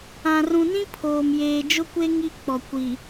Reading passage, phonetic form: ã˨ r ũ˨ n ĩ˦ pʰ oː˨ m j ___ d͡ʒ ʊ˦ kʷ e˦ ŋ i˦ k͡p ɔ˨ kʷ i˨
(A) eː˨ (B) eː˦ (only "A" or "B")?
A